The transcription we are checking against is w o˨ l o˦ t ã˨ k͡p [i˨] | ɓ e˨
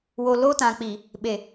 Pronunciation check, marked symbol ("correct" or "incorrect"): correct